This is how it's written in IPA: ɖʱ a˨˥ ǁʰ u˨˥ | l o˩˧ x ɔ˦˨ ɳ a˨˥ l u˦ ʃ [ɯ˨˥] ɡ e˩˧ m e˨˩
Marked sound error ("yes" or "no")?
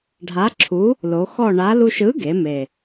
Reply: no